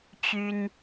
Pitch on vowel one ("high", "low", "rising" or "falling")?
high